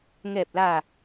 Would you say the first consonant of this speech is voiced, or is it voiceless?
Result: voiced